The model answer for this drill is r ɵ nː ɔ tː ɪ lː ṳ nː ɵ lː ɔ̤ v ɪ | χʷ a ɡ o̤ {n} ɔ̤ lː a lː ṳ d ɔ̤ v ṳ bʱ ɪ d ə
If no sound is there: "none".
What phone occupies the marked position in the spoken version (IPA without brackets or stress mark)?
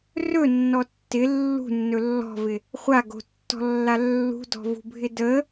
tː